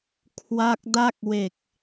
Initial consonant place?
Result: velar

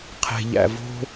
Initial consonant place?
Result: uvular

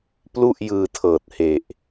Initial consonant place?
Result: labial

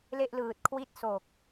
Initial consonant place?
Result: alveolar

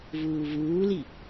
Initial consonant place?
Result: labial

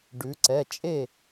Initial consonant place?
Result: retroflex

